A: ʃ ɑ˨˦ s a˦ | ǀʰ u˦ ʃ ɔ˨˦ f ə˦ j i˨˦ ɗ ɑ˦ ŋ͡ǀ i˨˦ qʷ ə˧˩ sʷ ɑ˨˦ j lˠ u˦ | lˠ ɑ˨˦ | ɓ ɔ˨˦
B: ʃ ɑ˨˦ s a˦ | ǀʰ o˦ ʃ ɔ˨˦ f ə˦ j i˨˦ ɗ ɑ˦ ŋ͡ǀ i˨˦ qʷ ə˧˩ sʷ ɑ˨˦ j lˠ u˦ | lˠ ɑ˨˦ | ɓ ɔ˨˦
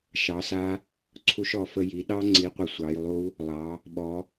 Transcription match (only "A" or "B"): A